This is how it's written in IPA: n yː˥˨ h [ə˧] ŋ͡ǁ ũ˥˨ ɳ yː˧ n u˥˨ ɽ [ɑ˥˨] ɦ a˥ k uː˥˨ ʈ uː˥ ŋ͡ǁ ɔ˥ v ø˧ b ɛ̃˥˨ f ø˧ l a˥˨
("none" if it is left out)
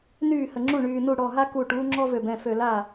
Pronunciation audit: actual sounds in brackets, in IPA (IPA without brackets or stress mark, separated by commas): ə˧, ɔ˥˨